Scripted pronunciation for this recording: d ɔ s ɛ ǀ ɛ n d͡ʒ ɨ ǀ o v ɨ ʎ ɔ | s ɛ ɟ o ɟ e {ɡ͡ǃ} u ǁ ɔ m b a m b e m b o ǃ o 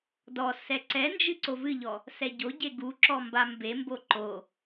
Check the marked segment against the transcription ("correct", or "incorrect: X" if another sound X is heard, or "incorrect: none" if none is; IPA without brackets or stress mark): incorrect: ɡ